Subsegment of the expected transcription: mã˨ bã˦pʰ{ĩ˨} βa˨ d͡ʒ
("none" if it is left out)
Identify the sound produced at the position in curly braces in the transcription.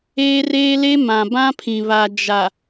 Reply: ĩ˨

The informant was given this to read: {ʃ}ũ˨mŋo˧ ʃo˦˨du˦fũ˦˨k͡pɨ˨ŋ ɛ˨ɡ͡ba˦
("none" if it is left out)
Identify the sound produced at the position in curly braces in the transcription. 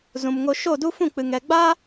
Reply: z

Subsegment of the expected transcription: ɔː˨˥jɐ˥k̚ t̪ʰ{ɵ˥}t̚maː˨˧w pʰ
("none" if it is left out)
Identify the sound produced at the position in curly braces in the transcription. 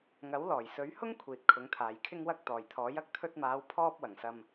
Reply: ɵ˧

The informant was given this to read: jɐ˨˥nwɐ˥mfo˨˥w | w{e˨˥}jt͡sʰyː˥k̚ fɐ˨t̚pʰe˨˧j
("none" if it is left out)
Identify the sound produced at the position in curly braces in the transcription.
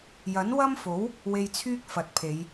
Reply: e˧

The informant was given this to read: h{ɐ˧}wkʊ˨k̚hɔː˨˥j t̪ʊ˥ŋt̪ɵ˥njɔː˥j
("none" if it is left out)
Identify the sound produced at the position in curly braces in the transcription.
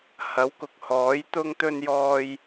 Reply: ɐ˨˥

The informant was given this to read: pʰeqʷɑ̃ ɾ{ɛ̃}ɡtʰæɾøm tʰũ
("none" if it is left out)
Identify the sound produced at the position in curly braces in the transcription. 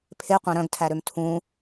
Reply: œ̃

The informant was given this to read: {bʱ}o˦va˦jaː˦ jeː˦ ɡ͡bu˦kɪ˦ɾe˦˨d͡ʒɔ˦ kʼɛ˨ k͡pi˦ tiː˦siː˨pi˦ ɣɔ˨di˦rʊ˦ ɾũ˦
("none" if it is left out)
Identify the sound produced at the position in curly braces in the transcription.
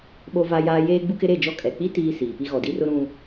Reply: ɓ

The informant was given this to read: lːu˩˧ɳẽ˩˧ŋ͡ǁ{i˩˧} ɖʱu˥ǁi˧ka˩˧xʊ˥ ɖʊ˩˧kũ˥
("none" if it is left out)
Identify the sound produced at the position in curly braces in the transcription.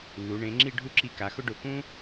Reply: i˥˧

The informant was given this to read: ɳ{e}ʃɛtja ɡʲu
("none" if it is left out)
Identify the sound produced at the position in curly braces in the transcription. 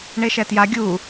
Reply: e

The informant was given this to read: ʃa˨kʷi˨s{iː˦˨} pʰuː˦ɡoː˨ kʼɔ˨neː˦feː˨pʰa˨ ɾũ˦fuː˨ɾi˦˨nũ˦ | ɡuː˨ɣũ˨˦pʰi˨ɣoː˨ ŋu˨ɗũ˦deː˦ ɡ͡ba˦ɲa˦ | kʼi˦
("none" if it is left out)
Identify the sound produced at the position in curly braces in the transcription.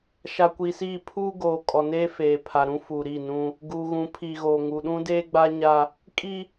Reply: iː˦˨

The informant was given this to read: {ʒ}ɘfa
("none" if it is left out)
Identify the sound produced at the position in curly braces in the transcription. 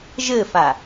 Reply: ʒ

